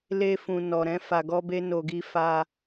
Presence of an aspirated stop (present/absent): absent